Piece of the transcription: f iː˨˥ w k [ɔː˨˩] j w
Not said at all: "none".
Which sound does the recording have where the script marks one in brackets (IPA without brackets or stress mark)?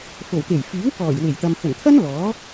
ɔː˨˩